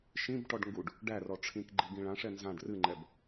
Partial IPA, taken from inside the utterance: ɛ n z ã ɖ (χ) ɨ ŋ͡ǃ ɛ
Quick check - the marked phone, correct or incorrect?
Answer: incorrect